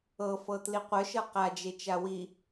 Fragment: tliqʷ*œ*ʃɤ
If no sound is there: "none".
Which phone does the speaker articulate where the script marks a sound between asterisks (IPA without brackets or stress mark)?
œ